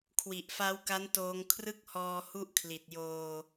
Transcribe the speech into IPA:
kʰ w i˨˩ ʔ f a˦˥ w k a˦˥ n t oː˧ ŋ kʰ r ɯ˦˥ k̚ h ɔː˧ h u˥˩ ʔ kʰ l i˨˩ t̚ j oː˧

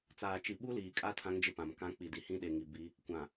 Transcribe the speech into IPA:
t͡s aː˨ t͡ʃ i˨ ɓ u˦ l iː˨ kʼ a˦ tʰ ã˦ ŋ d͡ʒ ɪ˦ p ã˨ m k ã˦ k͡p i˨ d i˨ h ĩ˦ ɗ e˨ ŋ i˨ b i˦ | kʷ ã˨

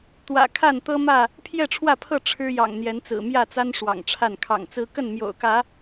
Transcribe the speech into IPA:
t̪ w ä̰˨˩ kʰ a˥˨ n t̪ ɤ˦ m ä˥˨ | pʰ j ɛ˥˨ ʈ͡ʂʰ w ä˥˨ pʰ ɤ˥˨ ʈ͡ʂʰ ɻ̩˦ j ɑ̰˨˩ ŋ n̪ j ɛ˨˦ n t͡s ɹ̩˨˩ m j ä˥˨ t͡s a˦ n ʂ w ɑ̰˨˩ ŋ ʈ͡ʂʰ a˥˨ n kʰ ɑ̰˨˩ ŋ t͡s ɹ̩˦ k ə˥˨ n m j o̰˨˩ ʊ̯ k ä˨˦

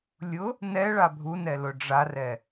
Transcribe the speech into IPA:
lʲ ʊ | n ɛ ɭ a bʱ u n ɛ l ʊ ɖ͡ʐ a r ɛ

